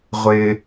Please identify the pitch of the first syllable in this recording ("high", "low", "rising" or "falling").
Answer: high